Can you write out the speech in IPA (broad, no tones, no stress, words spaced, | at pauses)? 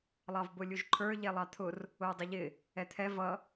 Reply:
lˠɑvbʊlʲuʒǃʰə˞ ʎɛlˠɑt̪ʰʊr | ʊjdˤɪʎɪ | ɛt̪ʰɛ vʌ